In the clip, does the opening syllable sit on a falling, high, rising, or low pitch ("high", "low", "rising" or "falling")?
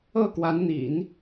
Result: falling